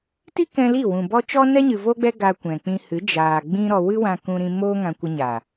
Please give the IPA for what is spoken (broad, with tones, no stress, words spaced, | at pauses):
ti˦kɛ̃˧ li˦˨wũ˨bɔ˦ t͡ʃɔ˦nɛ˦ɲɨ˨ vo˦ɡ͡bɛ˦ ɡa˧kʷɛ̃˨ k͡pĩ˧hɨ˨˦d͡ʒaː˨ ɡ͡bĩ˦ɾɔ˧ wɨ˦wã˧kũ˧ɾĩ˧ moː˦ŋã˧kʷə˧ɲa˨